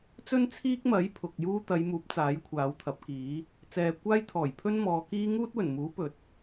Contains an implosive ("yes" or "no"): no